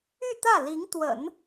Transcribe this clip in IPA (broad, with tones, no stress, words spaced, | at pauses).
y˥˧t̪ä˥˩li˧˥ŋt̪wə̰˨˩˦n